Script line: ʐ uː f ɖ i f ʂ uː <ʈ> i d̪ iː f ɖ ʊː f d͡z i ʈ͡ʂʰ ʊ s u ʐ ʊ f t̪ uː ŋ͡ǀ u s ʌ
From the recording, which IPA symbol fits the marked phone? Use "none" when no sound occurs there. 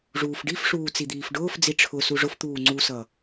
t͡s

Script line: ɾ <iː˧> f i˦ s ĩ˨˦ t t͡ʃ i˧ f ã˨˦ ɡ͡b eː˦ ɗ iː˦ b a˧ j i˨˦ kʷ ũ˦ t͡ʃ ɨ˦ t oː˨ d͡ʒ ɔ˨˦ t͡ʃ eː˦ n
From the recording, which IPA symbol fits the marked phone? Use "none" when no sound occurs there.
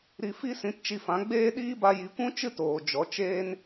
i˧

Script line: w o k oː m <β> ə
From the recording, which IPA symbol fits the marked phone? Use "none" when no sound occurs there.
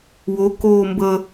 b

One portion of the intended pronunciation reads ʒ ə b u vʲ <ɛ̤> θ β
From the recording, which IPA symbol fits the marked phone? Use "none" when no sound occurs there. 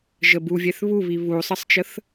ɛ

